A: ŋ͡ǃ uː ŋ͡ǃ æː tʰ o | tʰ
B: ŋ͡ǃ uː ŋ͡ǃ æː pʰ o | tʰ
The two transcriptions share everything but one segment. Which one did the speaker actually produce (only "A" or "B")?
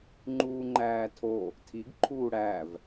A